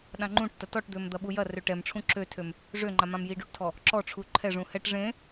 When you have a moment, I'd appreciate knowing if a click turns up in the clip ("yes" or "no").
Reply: yes